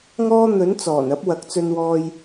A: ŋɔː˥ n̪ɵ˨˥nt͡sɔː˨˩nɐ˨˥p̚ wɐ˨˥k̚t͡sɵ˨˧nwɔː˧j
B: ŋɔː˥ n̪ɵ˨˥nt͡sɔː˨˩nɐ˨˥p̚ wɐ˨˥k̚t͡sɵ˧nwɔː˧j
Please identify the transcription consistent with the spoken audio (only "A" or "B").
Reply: B